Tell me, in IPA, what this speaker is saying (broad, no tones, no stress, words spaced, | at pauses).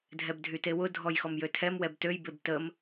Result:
dʱɛbdʱytewʊ dʱɔjxɔmjøtʰɛm wɛbtøj bebtəm